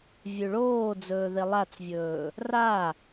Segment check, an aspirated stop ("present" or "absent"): absent